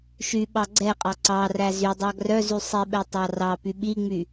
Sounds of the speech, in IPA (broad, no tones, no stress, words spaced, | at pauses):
ʃyɓɑ ɡ͡ǀɛqʼɑ ǀɑræ zydˤɑ ɡrœzy sˤiɓɛtˤɑ rɑpy ɓiŋ͡my